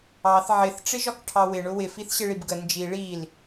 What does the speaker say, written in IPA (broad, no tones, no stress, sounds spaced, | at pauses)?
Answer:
ɑ θ ʕ ɪ θ ʈ͡ʂ ɪ ʒ ɒ k ʈʰ ɑ w ɪ ɳ ʊ w ɪ f i θ ɕ ɪ ɭ i b ɡ ə n d͡ʒ i ɭ i l